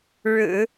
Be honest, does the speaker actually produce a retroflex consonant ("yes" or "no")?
yes